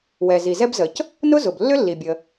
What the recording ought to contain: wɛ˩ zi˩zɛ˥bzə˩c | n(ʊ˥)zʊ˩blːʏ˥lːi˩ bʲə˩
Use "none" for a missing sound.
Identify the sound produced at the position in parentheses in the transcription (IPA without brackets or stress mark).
ʊ˥